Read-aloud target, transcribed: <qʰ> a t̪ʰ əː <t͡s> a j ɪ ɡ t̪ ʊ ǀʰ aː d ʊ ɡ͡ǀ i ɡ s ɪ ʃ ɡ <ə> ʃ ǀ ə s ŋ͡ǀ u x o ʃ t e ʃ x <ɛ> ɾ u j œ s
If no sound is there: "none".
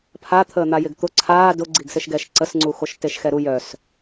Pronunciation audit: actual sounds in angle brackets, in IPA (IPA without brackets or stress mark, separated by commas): pʰ, n̪, ɛ, ɛ